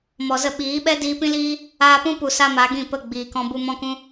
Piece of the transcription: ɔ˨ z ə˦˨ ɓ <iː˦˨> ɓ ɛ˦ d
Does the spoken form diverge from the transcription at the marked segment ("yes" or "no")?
yes